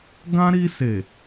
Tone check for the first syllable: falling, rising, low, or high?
high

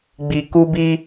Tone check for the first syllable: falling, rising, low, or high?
low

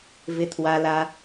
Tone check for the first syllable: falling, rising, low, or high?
low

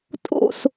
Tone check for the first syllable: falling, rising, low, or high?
falling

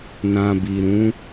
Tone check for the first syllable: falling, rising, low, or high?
low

